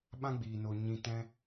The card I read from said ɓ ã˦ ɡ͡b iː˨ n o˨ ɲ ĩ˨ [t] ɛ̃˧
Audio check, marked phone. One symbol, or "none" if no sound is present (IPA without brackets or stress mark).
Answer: t